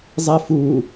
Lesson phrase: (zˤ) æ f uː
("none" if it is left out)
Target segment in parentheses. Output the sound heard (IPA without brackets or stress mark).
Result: zˤ